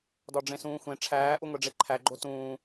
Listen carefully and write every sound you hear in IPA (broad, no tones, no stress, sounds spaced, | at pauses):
d ɒ ɖ͡ʐ ẽ s ũː xʷ ẽ ʈ͡ʂʰ æː ʔ u ŋʷ e ɖ͡ʐ e ǃʰ æ ɡ͡ǃ o t ũː